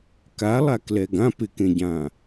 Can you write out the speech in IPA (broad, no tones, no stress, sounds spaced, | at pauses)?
k a lˠ a k l ɛ ɡ ã p ɪ k ẽ ɟ ã